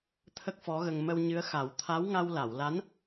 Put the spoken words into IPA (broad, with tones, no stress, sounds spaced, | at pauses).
t̪ʰ ə˦˥ k̚ f ɔ˧˥ ɣ ə˧ ŋ m ə˧ w ɲ ɨ˧˥ ə̯ x a˨˩˦ w t̪ʰ a˧˥ w ŋ a˧ w l a˨˩˨ w l a˧˥ n